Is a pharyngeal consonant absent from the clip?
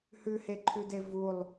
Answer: yes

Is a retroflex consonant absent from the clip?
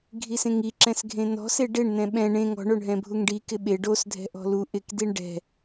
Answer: no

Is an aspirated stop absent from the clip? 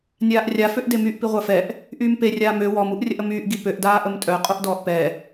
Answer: yes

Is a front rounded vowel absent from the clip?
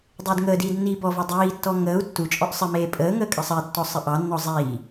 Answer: yes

